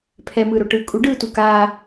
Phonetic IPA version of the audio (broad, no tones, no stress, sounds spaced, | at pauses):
pʰ ɛ m ɯː ɾ o ʈ ɯː kʼ u ɖ ɯː t u k aː